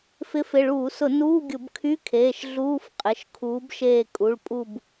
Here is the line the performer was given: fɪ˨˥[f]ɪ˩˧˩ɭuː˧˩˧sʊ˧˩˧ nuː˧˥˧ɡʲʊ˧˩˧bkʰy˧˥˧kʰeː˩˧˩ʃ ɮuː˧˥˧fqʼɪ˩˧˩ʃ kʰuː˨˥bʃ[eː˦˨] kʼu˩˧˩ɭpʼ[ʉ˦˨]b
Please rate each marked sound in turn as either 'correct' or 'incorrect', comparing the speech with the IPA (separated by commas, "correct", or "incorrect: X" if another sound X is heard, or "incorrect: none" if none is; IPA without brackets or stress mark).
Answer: correct, correct, incorrect: u˦˨